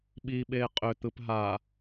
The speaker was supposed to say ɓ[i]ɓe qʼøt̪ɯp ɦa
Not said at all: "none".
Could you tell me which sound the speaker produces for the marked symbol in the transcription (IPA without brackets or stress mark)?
i